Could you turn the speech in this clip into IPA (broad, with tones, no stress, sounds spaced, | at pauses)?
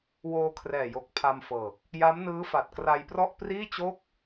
w oː˧ kʰ r ɛː˨˩ j o˨˩ k̚ pʰ a˧ m f ɤː˨˩ k̚ | j a˦˥ m n ɯː˦˥ f a˨˩ t̚ k r a˧ j p r ɔ˥˩ ʔ p r iː˥˩ t͡ɕ o˥˩ k̚